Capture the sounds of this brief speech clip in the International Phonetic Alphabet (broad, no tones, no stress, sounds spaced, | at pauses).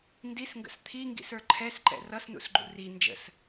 n d i s ŋ ɡ ə̰ s t̪ʰ i ŋ ɡ ḭ s ə˞ ǃʰ ɛ s ǃ ɛ̰ r ʌ s n ṵ s ɡ͡ǃ ṵ r i n d͡ʒ ə̰ s